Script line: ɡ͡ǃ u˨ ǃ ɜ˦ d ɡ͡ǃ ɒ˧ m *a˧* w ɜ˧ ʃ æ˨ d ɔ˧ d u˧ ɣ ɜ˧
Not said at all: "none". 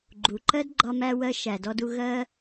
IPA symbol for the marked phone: æ˧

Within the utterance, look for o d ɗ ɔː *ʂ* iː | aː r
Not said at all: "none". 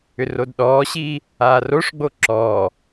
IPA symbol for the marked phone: ɕ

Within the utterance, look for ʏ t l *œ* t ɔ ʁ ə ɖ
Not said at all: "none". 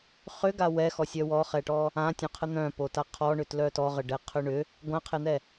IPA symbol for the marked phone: œ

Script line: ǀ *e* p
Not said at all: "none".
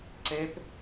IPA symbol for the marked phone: e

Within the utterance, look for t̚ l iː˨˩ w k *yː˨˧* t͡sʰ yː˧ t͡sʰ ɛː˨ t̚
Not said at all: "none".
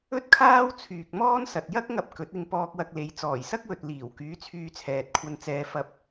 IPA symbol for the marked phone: yː˨˧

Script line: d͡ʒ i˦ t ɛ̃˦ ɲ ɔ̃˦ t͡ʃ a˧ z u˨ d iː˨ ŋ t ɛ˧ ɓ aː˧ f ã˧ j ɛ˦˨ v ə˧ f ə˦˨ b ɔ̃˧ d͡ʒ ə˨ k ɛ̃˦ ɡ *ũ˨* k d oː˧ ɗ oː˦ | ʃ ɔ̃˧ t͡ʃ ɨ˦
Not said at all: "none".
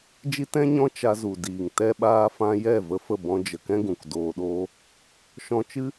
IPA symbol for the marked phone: ũ˨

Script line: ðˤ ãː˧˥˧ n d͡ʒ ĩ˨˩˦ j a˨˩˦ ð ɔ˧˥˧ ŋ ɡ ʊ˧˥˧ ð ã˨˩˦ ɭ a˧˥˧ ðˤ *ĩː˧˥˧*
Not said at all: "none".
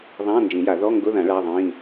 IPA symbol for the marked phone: ĩː˧˥˧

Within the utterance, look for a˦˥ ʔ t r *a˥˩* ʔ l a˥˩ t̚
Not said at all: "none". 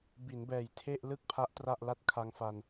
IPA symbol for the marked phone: a˥˩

